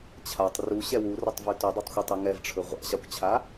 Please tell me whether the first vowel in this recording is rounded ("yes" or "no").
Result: no